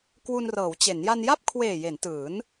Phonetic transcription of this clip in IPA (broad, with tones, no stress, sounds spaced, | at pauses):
k w u˧ n r ɤː˩˦ w t͡ɕ e˩˦ n j a˧ n j a˥˩ p̚ kʰ w eː˨˩ j e˩˦ n t ɯː˩˦ n